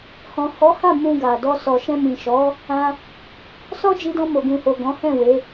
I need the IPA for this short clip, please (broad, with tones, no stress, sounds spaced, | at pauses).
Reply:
h ɔ̃˨ h ɔ˨˦ h a˦˨ m ũ˧ ɡ a˨ d ɔ˧ s ɔ˨ ʃ ɛ̃˧ m ĩ˨ ʃ ɔ˨˦ | ã˧ | s ɔ˦ d͡ʒ i˧ d ɔ̃˧ m o˨ ɡ ũ˨ h o˨ ɡ ɔ̃˨˦ h ɛ̃˦˨ w e˨˦